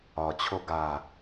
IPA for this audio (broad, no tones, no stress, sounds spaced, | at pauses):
ɒ t͡ɕʰ o ɡ a